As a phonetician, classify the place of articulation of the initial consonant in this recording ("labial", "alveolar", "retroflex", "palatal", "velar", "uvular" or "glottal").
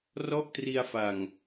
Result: alveolar